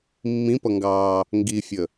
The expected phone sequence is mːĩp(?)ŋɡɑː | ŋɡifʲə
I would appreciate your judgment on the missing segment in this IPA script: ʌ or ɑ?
ʌ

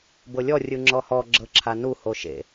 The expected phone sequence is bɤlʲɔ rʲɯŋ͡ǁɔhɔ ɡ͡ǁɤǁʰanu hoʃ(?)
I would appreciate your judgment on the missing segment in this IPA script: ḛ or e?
ḛ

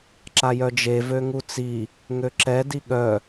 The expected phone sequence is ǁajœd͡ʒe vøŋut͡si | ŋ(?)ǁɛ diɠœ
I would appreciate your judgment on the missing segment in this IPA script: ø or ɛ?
ø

